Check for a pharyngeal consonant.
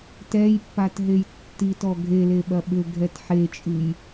present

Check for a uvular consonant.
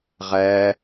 present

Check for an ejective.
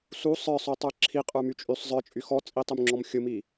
present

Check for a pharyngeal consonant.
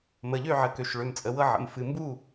present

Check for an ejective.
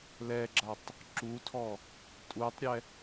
present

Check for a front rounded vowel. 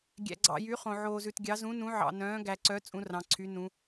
present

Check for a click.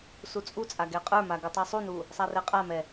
absent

